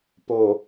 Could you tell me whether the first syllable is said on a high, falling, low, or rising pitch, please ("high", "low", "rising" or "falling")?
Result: low